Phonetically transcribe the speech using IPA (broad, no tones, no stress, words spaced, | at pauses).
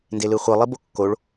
ndelɯχʷɯ lˠibokːoɭ